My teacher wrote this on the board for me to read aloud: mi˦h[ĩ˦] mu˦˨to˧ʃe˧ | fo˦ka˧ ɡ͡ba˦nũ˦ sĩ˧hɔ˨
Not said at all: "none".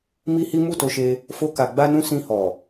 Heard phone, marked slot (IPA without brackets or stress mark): i˦